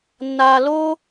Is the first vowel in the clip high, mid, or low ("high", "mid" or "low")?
low